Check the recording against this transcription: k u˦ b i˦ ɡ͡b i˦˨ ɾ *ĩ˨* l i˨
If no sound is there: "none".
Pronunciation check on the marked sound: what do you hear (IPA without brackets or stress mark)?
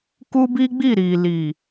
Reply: i˨